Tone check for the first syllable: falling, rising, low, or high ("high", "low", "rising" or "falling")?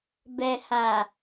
low